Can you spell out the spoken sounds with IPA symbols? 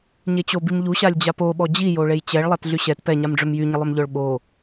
ɲ e t͡ɕ o b i m ʎ u ɕ a lʲ d͡ʑ a p o ɓ ɔ d͡ʑ i j o ɭ e j t͡ɕ ɛ ɭ lˠ a t ɮ y ɕ ɛ t p ɛ ɲ a m ɖ͡ʐ ø m j y ɲ ə lˠ œ m ʎ œ ɭ ɓ o

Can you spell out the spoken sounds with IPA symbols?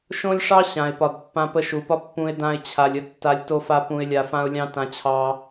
ʃ õ˦ lʲ ʂ ɑ˦ ɕ ã˨ ɪ̯ p ɒ˨ d pː ã˧ p ə˧ ʃ u˨ p ɒ˦ pː ũ˧ ɪ̯ d ã˧ ɪ̯ t͡ɕʰ a˨ lʲ ə˧ tː a˧ lʲ t o˧ f a˧ p ũ˨ ɪ̯ lʲ a˨ f ã˧ ʊ̯ lʲ ɑ̃˦ t ã˧ t͡ɕʰ ɑ˧

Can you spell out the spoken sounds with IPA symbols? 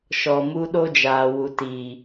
ʃ ɔ˨ m u˦ ɗ o˦ d͡ʒ aː˨ w u˨ t iː˨

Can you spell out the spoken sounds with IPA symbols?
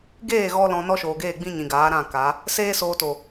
ɡ eː˦˨ ɣ ɔ˧ l ɔ̃˧ n ɔ˦ ʃ oː˨ ɡ eː˦˨ ɡ͡b ĩ˧ ɲ ĩ˨ ɡ aː˨˦ ɾ ã˦˨ k a˨˦ | s eː˦ s oː˧ t o˨

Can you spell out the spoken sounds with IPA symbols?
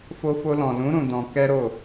f o˧ f o˧ l ɔ̃˨ l ũ˨˦ ɾ ũ˧ d ɔ̃˧ k ɛ˦ ɾ o˦˨

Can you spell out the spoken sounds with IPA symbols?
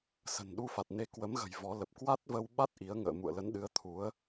s ə̤˨˩ n ɗ u˧ f a˨˩ t̚ n e˨˦ k w ə˨˦ m ɣ ə̤˨˩ j v ɔ˨˦ l ə˨˩ p̚ k w a˦˥ t̚ v ə˧ w ɓ a˦˥ t̚ ʔ i˨˦ ə̯ ŋ ə̰ː˧˨ m ṵ˧˨ ə̯ l ə˨˦ n ɗ ɨ˨˦ ə̯ t̪ʰ u˨˦ ə̯

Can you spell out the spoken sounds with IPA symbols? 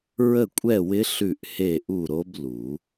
ɹ ə˥˧ kʷʼ ɛ˥˧ w ɪ˦˥ ɬ ʉ˥˧ ʔ h e˥˧ ʔ u˥˧ ɾ o˦˥ b l u˨˩˦

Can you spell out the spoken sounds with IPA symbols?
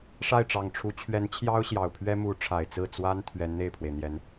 ʂ a˥˩ ɪ̯ ʈ͡ʂ ɑ˨˩ ŋ ʈ͡ʂʰ u˧˥ t͡ɕʰ ɥ ɛ˧˥ n t͡ɕʰ j ɑ˥ ʊ̯ ɕ j ɑ˨˩ ʊ̯ pʰ ɥ ɛ˥ m u˧˥ ʈ͡ʂʰ a˨˩ ɪ̯ t͡s ɹ̩˥˩ t͡s w a˥ n t̪ʰ ɥ ɛ˧˥ n n̪ e˥˩ ɪ̯ pʰ w e˩ ɪ̯ n̪ j ɛ˧˥ n

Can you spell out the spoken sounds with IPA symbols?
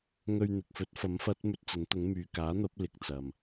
ŋ ɵ˧ ɥ n̪ ɪ˨ k̚ f ɵ˨˥ t̚ f ɐ˨˥ m f ɐ˨˥ t̚ m ɵ˧ t̚ t͡s ɐ˨˥ n t̪ ʊ˨˥ ŋ m yː˨ k aː˨˥ n̪ ɐ˨˥ p̚ l ɪ˨ k̚ t͡s ɐ˨ m

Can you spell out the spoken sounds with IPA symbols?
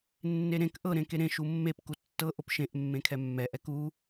nː e ɾ ẽ k ʔ ɤ ɾ ẽ k e ɾ ẽ ʃ u mː e p k u tː ɤ ʔ o p ʃ ẽ ʔ mː ẽ kʰ ɛ mː ɛ ʔ ɛ k u

